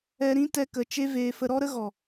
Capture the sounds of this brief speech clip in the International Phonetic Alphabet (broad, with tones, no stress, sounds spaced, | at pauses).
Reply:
ɛ˧ ɾ ĩ˦ t ɛ˦ k ə˧ t͡ʃ e˦ v eː˧ f ə˧ ɾ ɔ˦ ɾ ə˦ ɣ ɔ˨